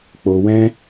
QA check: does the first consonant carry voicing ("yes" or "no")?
no